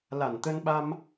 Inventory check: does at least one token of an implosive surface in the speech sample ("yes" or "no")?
yes